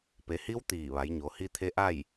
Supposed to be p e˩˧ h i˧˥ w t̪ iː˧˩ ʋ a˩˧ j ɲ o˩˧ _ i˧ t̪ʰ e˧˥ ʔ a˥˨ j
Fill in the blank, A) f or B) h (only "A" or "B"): B